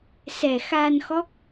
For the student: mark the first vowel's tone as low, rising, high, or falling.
low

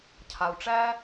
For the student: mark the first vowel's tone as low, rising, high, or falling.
low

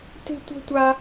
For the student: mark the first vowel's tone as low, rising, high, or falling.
high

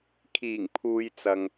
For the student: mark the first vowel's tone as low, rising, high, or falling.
low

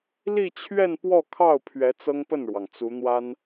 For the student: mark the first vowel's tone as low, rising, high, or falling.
falling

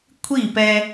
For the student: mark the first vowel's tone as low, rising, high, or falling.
falling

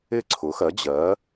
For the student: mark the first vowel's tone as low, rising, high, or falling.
falling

